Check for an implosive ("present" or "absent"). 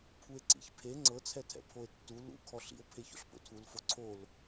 absent